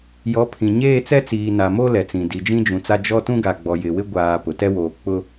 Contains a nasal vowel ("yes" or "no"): yes